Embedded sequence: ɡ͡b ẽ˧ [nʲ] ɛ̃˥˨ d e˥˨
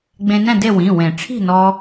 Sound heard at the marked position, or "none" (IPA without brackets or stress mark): n